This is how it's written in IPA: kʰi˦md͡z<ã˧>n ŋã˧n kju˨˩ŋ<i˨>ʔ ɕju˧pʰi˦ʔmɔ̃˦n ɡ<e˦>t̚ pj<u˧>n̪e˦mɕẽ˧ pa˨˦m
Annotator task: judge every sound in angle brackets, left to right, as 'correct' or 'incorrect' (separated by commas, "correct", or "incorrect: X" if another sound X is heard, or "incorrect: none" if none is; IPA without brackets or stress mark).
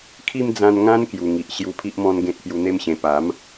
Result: correct, correct, incorrect: ẽ˦, correct